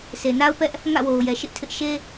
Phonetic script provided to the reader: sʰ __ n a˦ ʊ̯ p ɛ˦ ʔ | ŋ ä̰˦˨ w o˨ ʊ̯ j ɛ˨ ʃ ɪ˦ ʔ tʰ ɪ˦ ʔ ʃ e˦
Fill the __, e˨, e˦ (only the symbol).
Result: e˨